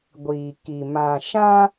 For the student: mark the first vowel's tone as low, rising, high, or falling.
low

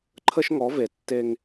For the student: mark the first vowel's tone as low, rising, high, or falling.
high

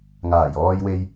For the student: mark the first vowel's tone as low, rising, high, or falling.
low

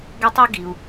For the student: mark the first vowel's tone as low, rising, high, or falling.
high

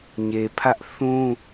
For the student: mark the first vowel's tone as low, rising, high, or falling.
low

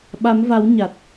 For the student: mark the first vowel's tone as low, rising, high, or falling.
rising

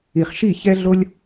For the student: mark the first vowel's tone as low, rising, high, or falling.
low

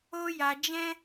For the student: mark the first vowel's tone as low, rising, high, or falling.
high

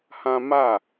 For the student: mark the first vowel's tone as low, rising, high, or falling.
high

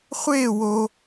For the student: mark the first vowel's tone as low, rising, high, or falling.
falling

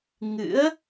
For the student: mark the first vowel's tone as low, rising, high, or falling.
rising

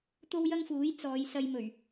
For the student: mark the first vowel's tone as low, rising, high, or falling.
high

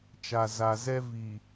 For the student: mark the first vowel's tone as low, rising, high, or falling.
low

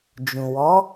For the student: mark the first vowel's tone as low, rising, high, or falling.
low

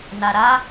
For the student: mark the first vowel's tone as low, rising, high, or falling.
low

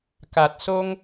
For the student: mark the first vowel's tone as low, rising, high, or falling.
low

